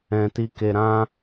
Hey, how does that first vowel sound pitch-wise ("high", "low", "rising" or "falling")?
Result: low